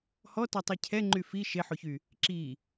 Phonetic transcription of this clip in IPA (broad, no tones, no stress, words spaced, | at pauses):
hɔtɔtˤi cʰɛŋ͡ǃy fi ʃeħoçy | ǁi